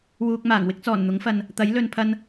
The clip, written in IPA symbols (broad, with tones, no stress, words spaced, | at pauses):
wuː˧k̚maː˨˩ŋ wɪ˥k̚t͡sɔː˨˩nn̪ʊ˨˥ŋfɐ˨n | t̪ɐ˨˥jlɵ˨npʰɐ˧n